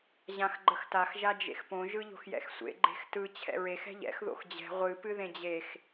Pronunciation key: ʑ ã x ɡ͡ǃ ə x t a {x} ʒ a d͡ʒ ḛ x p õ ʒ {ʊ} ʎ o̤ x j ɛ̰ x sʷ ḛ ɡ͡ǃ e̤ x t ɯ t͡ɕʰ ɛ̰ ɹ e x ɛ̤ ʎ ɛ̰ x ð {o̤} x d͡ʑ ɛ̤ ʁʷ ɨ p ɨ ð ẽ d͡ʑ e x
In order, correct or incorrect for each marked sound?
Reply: correct, incorrect, incorrect

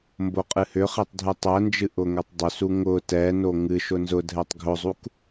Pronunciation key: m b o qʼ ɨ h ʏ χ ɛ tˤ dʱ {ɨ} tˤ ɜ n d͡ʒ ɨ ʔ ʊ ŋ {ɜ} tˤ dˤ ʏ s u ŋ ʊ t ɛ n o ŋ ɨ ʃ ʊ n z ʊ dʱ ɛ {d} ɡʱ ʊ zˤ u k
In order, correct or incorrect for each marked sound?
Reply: correct, incorrect, incorrect

